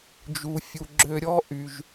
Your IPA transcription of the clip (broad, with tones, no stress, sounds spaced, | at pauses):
d͡ʒ u˨ fʲ u˨ ɡ͡ǁ ø˧ ɾʲ ɔ˦ ʔ y˨ ʒ